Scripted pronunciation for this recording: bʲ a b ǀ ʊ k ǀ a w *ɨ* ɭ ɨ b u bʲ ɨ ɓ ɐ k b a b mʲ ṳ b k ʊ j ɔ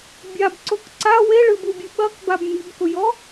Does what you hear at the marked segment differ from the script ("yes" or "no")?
yes